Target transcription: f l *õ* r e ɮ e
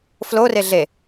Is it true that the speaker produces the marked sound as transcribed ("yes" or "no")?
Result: no